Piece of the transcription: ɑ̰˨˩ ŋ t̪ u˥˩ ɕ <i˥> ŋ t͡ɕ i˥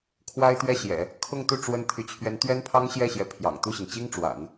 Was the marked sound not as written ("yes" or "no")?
yes